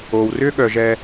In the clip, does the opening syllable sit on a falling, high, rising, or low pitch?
low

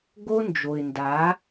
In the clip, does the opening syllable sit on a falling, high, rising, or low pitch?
high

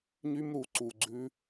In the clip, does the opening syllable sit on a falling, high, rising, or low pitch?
high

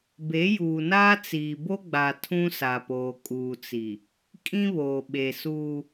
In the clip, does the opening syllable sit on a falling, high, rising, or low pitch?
rising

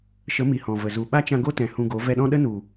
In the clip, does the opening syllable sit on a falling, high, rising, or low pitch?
rising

